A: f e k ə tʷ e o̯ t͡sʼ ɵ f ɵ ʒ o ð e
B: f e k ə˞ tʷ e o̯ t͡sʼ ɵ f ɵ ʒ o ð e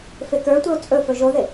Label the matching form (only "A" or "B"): B